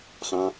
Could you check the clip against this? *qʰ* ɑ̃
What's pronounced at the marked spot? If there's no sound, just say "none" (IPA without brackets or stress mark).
χ